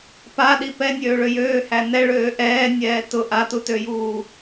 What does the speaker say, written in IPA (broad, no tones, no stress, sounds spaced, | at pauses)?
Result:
p a ɗ i p ɛ nʲ øː ɭ ø j øː h æ n ɛ ɭ øː ʔ ɛː nʲ ɛː t ʊ ʔ a t u t ø j uː